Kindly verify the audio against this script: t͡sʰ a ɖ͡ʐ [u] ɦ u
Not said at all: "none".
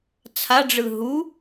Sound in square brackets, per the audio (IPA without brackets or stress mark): ɯ